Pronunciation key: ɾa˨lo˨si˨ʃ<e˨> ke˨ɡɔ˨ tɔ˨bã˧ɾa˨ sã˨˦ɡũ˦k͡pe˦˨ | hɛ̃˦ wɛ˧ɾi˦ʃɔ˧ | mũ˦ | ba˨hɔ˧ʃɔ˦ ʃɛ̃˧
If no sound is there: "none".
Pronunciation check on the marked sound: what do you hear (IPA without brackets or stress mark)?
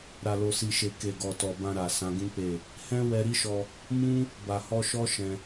e˨